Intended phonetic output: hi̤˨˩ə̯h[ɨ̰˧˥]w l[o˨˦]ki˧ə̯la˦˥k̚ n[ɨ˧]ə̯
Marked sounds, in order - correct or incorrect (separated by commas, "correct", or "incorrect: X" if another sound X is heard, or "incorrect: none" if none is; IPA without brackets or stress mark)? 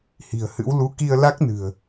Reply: correct, incorrect: u˨˦, incorrect: ɨ̤˨˩